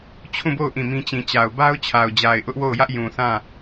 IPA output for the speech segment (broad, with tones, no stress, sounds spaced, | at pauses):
t͡ɕʰ ũ˦˨ b o˦˨ ʊ̯ ʔ ĩ˦˨ m ĩ˦ t͡ɕ ĩ˨ t͡ɕ a˨ ʊ̯ b a˦ ʊ̯ t͡ɕʰ a˨ ʊ̯ d͡ʑ a˨ ɪ̯ ʔ ʊ˦ ʔ w o˦˨ ʊ̯ j ä˦ ʔ j ũ˨ θ ã˦˨